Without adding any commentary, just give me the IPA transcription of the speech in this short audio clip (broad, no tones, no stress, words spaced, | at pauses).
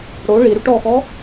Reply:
ɽo ɭiɾuʈ ɔxɔ